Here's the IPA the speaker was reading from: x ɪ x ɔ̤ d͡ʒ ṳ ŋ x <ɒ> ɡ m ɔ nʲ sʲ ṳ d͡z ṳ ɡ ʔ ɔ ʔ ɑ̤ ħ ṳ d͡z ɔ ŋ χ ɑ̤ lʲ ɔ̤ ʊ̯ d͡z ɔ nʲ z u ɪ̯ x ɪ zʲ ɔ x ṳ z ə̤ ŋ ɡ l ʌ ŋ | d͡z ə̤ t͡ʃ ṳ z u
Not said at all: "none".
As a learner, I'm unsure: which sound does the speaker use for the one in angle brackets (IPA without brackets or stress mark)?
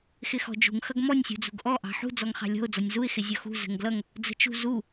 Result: ʌ